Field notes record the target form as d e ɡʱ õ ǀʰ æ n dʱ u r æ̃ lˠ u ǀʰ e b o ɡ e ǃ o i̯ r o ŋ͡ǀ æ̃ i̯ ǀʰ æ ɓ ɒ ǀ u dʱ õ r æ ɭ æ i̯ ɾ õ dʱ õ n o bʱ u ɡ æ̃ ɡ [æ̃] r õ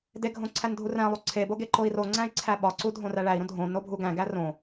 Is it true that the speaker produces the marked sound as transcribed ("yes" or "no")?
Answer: no